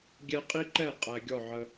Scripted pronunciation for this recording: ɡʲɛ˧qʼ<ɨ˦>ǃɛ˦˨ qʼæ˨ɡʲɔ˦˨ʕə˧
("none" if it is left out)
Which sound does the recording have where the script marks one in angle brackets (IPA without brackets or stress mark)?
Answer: i˦